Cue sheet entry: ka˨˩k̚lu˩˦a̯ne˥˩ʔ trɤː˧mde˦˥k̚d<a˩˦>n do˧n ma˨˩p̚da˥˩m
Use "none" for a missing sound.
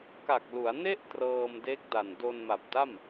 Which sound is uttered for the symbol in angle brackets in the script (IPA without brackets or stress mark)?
a˨˩